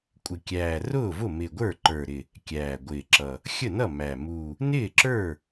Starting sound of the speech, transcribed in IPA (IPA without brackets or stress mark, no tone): kʷʼ